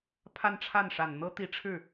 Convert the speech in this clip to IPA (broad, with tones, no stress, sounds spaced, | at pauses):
pʰ a˥˧ n ʈ͡ʂʰ a˥˩ n ʂ a˨˩ n n̪ ɤ˥ t̪ i˧˥ ʈ͡ʂʰ ɻ̩˥˩